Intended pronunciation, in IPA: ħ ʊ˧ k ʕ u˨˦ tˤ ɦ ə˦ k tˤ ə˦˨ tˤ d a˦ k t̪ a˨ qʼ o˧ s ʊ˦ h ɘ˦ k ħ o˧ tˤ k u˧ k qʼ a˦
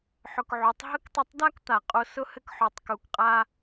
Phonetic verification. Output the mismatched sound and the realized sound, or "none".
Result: none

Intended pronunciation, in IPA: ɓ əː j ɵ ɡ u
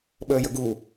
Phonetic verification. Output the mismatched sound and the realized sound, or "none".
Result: ɵ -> ə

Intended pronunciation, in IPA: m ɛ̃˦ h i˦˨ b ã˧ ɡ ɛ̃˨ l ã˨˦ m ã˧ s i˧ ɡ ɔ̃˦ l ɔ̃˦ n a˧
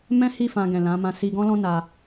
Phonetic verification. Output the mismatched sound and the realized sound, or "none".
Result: b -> f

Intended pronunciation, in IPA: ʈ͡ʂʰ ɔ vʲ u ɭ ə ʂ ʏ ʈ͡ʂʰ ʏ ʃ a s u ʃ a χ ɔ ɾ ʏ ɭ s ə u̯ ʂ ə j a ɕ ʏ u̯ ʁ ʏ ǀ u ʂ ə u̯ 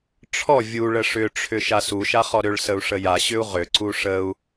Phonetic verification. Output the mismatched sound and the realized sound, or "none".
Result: none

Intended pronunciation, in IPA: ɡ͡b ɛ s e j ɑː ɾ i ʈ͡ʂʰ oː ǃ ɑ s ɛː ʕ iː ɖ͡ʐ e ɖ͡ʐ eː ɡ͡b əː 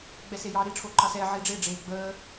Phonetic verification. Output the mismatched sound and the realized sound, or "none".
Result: none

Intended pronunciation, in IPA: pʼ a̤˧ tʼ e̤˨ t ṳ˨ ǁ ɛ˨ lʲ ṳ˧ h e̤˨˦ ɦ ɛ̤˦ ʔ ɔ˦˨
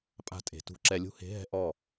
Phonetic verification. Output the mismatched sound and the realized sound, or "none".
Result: none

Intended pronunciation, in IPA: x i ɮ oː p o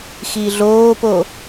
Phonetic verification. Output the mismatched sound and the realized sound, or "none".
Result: none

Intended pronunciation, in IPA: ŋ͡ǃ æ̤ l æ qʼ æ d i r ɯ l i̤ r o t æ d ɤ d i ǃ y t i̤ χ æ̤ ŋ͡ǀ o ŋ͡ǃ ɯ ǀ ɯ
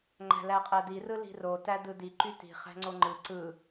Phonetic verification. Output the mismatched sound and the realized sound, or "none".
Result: ɤ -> ɯ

